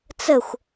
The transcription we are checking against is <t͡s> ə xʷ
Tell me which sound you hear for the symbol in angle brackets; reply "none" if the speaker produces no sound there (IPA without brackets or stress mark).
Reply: t͡s